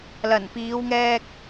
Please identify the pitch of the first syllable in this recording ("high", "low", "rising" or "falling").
low